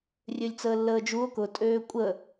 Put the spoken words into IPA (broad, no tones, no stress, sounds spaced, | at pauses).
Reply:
rʲ ø lʲ t͡s əː lː əː d͡ʒ u o̯ k ʊ tʼ øː kʷʼ ə